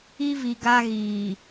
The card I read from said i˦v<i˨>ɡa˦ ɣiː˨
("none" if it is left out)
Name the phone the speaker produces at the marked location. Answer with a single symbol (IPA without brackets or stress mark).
i˨